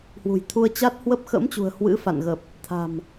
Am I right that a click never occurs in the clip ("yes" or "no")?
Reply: yes